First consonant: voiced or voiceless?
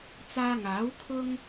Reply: voiceless